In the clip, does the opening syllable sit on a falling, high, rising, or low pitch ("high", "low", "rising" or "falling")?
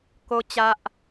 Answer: high